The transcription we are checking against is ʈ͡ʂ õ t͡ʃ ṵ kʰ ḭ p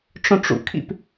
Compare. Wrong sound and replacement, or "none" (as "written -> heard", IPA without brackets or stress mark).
t͡ʃ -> ʈ͡ʂ